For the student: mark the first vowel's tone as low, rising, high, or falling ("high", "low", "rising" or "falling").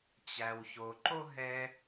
low